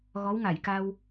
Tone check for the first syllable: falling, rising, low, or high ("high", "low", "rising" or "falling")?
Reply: rising